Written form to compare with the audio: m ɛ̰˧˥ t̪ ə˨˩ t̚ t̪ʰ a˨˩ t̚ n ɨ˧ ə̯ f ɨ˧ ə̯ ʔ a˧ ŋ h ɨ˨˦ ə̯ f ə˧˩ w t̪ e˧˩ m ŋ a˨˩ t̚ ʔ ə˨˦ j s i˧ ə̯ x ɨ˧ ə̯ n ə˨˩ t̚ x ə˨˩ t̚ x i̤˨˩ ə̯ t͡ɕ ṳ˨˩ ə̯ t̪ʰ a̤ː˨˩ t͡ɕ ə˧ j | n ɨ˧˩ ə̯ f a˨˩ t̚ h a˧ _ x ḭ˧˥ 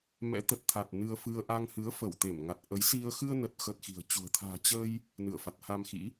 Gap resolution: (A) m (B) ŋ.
A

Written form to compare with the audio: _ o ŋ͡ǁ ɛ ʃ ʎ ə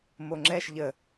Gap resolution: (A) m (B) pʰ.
A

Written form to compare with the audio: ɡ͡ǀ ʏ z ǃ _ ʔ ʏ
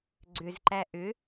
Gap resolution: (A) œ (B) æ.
B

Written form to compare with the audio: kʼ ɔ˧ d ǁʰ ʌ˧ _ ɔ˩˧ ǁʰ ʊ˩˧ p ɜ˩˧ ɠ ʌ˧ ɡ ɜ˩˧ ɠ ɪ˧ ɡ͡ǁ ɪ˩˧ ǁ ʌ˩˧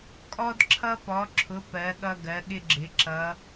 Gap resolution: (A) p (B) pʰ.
A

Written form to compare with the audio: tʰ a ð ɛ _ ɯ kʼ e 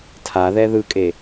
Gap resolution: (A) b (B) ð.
B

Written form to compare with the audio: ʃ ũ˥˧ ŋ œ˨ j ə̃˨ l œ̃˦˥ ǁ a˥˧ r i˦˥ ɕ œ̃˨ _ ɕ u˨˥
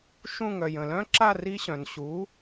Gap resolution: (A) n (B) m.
A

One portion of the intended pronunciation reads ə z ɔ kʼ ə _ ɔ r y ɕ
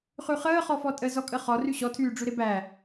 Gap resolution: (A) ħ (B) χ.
B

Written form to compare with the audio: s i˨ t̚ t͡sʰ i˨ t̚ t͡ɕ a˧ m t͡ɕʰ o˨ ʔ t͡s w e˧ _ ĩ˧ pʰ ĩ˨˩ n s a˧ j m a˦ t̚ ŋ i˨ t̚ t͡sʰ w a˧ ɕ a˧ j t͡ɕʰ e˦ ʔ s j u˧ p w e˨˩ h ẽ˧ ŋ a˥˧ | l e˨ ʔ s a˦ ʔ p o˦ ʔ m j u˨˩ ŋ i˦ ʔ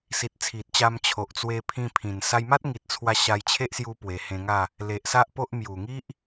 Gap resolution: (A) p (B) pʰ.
B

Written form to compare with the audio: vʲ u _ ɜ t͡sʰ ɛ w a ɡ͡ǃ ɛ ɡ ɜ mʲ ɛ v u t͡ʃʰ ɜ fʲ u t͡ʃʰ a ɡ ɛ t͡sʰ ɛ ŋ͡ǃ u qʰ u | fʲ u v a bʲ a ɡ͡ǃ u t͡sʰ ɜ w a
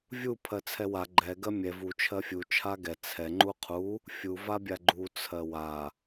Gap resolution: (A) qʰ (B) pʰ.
B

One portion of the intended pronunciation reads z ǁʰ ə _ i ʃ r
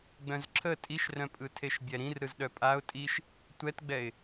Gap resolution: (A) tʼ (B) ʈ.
A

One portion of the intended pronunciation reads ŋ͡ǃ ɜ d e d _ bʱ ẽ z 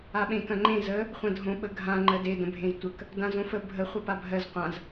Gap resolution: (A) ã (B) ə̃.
B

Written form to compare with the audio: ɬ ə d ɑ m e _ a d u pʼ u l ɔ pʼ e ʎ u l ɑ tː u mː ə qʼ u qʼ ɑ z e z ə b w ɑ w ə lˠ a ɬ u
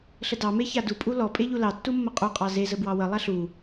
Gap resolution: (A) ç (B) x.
A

